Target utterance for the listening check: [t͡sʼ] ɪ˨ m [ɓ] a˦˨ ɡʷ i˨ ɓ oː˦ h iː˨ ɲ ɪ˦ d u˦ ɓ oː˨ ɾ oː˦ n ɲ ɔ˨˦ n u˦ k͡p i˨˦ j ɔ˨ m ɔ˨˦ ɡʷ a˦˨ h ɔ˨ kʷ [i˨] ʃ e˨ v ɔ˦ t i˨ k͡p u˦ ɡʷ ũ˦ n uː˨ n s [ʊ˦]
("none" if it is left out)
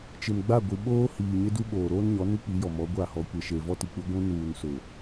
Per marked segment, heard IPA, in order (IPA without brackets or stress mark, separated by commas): t͡ʃ, ɡ͡b, e˨, ʊ˨